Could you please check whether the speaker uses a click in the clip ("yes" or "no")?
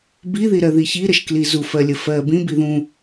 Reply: no